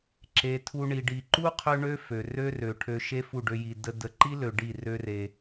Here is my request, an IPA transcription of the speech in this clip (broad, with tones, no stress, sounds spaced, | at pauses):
ǁ e˧ tʰ u˦ ɳ i˧ ɖ i˨ ǃ u˦ qʰ ø˦ ɳ ø˦ f ø˨ r ø˦ r ø˨ ʈʰ ø˧ ʃ e˦ f u˦˨ ɖ ø˧ j i˨ d ə˦ d ə˧ ǃ i˦ l ø˨ ɖ i˦˨ r ø˦ r e˧